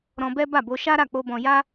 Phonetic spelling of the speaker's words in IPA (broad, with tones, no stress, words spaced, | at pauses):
ɾɔ̃˧bɛ˦ ba˦˨bo˧ʃa˦ɾa˦˨ k͡po˧bɔ̃˧ja˦